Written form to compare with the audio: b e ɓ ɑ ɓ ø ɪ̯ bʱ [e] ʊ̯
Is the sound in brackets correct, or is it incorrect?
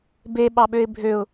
incorrect